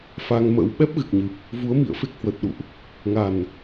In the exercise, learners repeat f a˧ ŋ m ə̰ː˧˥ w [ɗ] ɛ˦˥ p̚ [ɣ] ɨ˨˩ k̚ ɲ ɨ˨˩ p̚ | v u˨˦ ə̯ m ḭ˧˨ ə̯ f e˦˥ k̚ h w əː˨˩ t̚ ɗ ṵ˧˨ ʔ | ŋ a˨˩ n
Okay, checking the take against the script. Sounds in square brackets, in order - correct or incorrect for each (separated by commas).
incorrect, correct